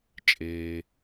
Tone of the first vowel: low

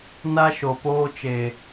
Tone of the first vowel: high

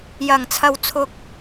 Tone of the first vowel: low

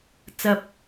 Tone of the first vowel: low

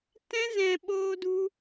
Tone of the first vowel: high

